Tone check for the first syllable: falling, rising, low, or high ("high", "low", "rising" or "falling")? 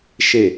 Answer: falling